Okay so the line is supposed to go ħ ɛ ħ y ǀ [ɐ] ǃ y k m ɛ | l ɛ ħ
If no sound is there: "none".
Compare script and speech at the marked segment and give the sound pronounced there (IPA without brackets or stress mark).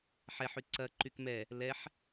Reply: ɐ